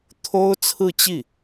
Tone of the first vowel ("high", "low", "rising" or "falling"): high